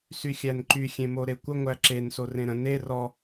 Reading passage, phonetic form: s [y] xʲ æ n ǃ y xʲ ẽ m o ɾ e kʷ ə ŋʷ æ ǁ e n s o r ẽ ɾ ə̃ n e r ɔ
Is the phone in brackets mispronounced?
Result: no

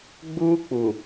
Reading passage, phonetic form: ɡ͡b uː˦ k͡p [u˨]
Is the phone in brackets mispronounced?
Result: no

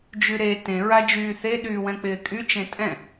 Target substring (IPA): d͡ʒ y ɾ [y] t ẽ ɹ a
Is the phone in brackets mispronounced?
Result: yes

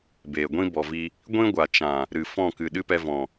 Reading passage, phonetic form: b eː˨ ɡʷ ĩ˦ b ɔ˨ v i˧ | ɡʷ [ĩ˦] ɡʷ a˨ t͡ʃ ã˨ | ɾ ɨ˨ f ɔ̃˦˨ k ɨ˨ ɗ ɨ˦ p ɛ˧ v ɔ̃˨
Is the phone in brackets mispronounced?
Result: no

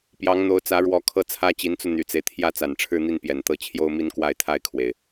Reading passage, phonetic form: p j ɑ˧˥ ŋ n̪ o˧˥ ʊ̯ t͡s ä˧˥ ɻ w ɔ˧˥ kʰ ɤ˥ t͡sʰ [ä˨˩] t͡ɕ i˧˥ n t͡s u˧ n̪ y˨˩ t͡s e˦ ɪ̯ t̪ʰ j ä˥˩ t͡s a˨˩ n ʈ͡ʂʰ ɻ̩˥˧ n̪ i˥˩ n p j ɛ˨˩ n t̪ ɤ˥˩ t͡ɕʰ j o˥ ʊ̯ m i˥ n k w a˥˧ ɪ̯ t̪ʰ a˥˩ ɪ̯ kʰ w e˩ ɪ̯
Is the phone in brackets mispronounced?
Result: yes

